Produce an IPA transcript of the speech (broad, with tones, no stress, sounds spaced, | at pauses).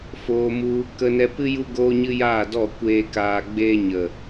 f oː˧ m u˧ | k ə˧ n ɛ˧ p ɨ˦ j u˦ ɡ oː˦ ɲ ɨ˦ j aː˦˨ d ɔ˦˨ kʷ eː˧ k aː˧ ɡ͡b eː˦ ɲ ə˨